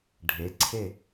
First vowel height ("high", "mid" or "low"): mid